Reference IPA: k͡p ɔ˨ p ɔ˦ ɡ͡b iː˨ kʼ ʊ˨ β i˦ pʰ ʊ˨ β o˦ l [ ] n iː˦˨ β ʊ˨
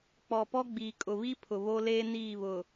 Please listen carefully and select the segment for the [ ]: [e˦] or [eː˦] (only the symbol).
eː˦